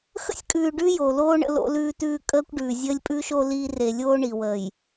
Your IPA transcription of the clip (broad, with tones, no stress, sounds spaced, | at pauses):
x ə̰˦ sʲ kʼ ʉː˨ ɖ ʉ˦ j o˨ l oː˦ ɳ ə̰˨ l o̰˨ l ʉː˨ t ʉː˨ kʼ əː˦ kʷ ɖ ʉː˨ zʲ əː˦ lʲ pʼ ʉː˦ ʃ o˦ l iː˦ r e˨ lʲ oː˦ ɳ i˨ w əː˨ j